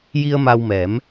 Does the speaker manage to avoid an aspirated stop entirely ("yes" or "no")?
yes